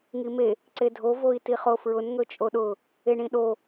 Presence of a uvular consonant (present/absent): present